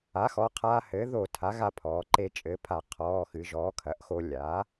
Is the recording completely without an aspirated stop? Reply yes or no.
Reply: no